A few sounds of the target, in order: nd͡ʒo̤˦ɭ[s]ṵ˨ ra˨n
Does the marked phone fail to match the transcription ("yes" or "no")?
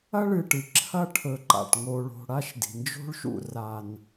yes